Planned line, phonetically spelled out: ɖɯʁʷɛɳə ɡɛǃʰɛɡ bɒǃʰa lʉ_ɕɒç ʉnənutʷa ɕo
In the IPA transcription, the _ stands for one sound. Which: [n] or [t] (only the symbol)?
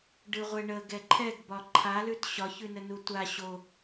t